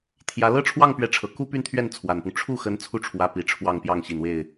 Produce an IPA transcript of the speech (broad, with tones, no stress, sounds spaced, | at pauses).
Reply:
t̪ʰ j ä˧˥ l ɤ˥˧ ʈ͡ʂʰ w ɑ˥˩ ŋ p ɥ ɛ˧˥ ʈ͡ʂʰ ɤ˨˩ k u˥ p y˥˧ n t̪ʰ ɥ ɛ˥˩ n t͡sʰ w a˨˩ n p ʊ˦ ŋ ʈ͡ʂʰ u˥˩ x ə˧˥ n t͡sʰ u˥˩ ʈ͡ʂʰ w ä˧˥ p i˨˩ ʈ͡ʂʰ w ɑ˥˧ ŋ p j ɑ˥˩ ŋ ɕ i˨˩ n w e˥˩ ɪ̯